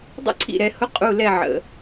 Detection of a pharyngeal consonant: present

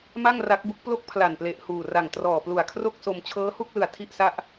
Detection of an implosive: absent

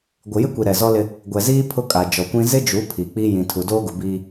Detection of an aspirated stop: present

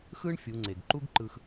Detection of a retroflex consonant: present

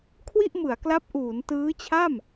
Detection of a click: absent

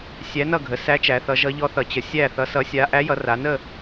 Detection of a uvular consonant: absent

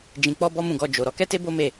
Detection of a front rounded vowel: absent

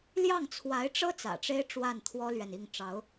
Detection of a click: absent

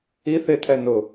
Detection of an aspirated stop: present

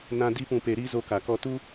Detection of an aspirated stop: absent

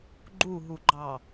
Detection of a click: present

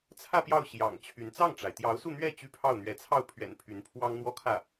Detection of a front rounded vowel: present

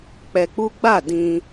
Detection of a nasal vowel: present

